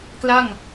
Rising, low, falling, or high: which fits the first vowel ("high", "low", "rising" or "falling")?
falling